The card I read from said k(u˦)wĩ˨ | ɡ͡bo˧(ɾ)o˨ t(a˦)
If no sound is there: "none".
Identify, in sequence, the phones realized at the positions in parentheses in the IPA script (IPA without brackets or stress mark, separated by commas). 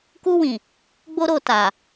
u˧, ɾ, a˨